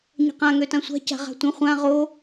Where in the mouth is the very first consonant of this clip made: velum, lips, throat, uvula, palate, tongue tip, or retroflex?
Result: palate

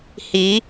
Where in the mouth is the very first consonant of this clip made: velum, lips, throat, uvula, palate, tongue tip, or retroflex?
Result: throat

